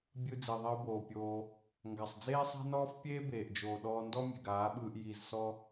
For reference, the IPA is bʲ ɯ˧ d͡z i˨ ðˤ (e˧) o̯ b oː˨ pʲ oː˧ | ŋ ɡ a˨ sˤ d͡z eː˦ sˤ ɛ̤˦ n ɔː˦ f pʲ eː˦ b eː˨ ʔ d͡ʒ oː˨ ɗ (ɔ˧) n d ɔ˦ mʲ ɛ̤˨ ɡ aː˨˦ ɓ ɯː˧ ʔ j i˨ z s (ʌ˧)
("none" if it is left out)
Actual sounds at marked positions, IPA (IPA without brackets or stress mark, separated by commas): i˧, ɔː˧, ɔ˧